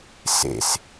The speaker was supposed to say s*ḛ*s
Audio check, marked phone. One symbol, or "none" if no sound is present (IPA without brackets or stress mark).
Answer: ḛ